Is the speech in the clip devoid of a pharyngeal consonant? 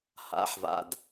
no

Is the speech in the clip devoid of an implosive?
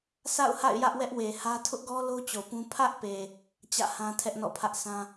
yes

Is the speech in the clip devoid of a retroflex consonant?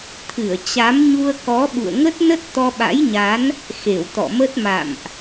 yes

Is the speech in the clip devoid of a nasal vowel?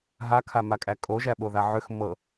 yes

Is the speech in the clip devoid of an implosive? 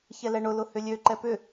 yes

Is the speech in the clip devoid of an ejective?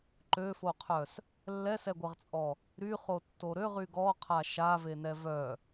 no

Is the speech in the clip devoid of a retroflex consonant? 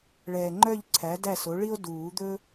no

